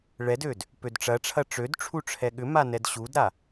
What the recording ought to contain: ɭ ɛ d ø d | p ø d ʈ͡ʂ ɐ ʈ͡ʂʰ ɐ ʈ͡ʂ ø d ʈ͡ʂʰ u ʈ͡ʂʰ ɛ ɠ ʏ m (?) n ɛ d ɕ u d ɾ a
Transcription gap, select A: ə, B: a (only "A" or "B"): B